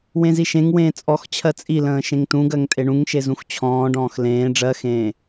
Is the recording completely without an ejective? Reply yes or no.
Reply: no